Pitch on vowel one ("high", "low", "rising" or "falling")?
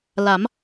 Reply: rising